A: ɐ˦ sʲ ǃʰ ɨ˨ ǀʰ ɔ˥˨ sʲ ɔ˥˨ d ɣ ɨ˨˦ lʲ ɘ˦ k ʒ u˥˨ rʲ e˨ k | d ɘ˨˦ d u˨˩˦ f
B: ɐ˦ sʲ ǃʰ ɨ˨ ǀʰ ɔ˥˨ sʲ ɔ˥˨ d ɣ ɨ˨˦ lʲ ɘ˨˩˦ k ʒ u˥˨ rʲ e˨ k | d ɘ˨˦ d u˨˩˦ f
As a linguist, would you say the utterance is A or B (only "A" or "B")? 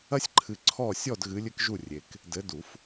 A